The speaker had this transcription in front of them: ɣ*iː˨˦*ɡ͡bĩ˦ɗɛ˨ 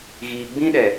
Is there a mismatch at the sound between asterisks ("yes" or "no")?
yes